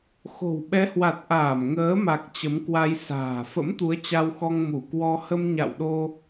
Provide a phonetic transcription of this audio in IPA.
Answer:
xo̤˨˩wɓɛ˨˦hwa˨˩t̚ ʔaː˧˩mŋəː˨˦ma˨˩k̚ t͡ɕə˨˦mkwa˧j sa̤ː˨˩fə̰˧˥mt̪u˨˦ə̯ t͡ɕa˧wxɔ˧ŋ mu˧˩kwɔ˧ hə˧mɲa̰˧˨wɗo˧

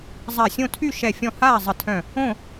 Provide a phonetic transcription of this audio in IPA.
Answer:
zˤa˧˩ sʲõ˥˨tʰy˥˨ʃɛ˧˩ fʲɔ̃˥˨ haː˥˨zˤə˧˩tʰœ̃˧˩ | õ˥˨

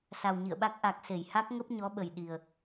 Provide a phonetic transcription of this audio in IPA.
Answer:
sa˨˩wɲḭ˧˨ə̯ɓa˦˥k̚ ʔa˨˩k̚ se˧˩jha˦˥k̚ŋə˦˥p̚ ɲɔ˨˦ɓə˨˩j ɗi˨˩ə̯

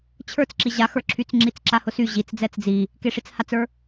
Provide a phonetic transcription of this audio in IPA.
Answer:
t͡ɕʰə˞t͡s ǁiʑaxə˞ǁʰyt͡s ŋ͡ǁit͡sǁahʊsy ʑit͡s d͡zɛt͡sd͡zi | keʂit͡shat͡sə˞

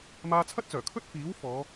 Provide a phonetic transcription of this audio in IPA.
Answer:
maː˧t͡sʰɐ˥t̚t͡sœː˨˩kʰɵ˥t̚ fiː˨˥w fɔː˨˧

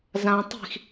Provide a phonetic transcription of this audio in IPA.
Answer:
zã tˤi̤x

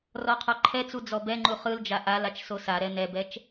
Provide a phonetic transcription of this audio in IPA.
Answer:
rɔqʰɔǃʰɛt͡su d͡zɔbɛŋ͡ǃu χɯld͡ʒa ʔal at͡ʃsosaɾɛ nɛbɛt͡ʃ

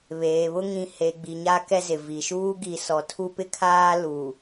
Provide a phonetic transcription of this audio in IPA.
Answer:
βeː˨βʊ˦ ŋĩ˨he˨ ɡ͡bi˨ɲa˦ kɛ˦zɪ˨vi˨ ʃuː˦ɡi˨sɔ˨ tʰu˦pɪ˦kʰaː˦ lu˨

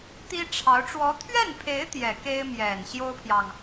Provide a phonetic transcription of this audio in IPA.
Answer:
t̪i˥ʈ͡ʂʰɑ˧˥ʊ̯ ʈ͡ʂwɔ˧˥t̪ʰɥɛ˥˩npʰe˧˥ɪ̯ t̪jɛ˨˩ ke˥ɪ̯mjɛ˨˩n ɕjo˥ʊ̯pʰjɑ˨ŋ

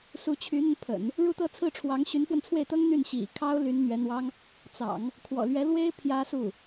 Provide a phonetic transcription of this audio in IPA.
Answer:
su˧˥t͡ɕʰy˧˥n̪ə˧npʰə̰˨˩˦n | ɻu˥˧t̪ɤ˥˧t͡sʰɹ̩˥˩ʈ͡ʂʰwɑ˧˥ŋ ɕy˧˥nfwə˧nt͡sʰwe˥˩ɪ̯t̪ɤ˥ŋ n̪y˥˩nɕḭ˨˩ kʰɑ˥ʊ̯ ly˧˥nn̪ɥɛ˧˥n̪wɑ˥ŋ | t͡sɑ̰˨˩˦ŋ | kʰwɔ̰˨˩lɥɛ˧˥lwe˥ɪ̯ pʰjä˥su˥˩

